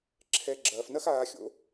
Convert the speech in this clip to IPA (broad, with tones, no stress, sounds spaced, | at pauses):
ǁʰ ɛ˧ ɡ͡ǁ ɐː˧ f n ɐ˥ x aː˧ xʲ o̰˩˥